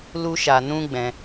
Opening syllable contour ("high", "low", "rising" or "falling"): high